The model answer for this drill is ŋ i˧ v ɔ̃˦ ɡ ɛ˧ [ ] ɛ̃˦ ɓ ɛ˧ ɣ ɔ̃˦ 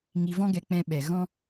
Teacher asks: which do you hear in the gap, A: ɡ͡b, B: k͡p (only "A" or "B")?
B